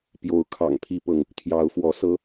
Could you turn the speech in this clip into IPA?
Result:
p j o˨˦ ʊ̯ kʰ ɑ̰˨˩ ŋ pʰ i˥˨ p ɤ˥˨ ŋ | t̪ʰ j ɑ˨˦ ʊ̯ f w ɔ˨˦ s ɤ˦

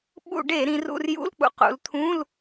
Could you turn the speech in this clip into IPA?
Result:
ɓ ṵ˧˩˧ ɖ e˧˩˧ ɾ ĩ˩˧ r ṵ˧ r j ṵ˧˥˧ l k͡p ṵ˨˩ q ṵ˩˧ l t̪ʰ ũ˧˥˧ l

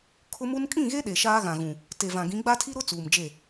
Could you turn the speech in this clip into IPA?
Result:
kʰ ʊ˦ m u˦ n kʼ ĩ˦˨ ɣ e˦ ɗ e˨ ʃ aː˦ ɣ ã˨ ɣ ũ˨ | t e˨ v ã˨ ɡ ĩ˨˦ ɡ͡b a˦ tʰ i˦ ɾ ʊ˦ t͡s uː˨ m d͡ʒ e˦˨

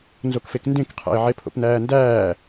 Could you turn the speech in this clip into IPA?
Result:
n z o k f e k n d ẽ k qʰ æ̰ ɪ̯ ʕ e pʰ o̰ p n æː n d æː

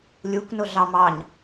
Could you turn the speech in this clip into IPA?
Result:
lʲ u k n ʊ ɮ ɑ m ɑ ɲ

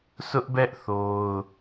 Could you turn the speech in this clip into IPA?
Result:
s ʊ˦ ʔ b ɛ˦ ʔ θ o˦ ʊ̯

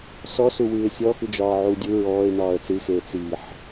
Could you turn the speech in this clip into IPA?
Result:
s ɔ s u w ɨː ɪ̯ sʲ ɔ x ɨ d͡ʒ ɒː ʕ u dʲ u ɹ ɔː ɪ̯ n ɒː ə̯ t͡s ɨ x eː t͡s i ħ

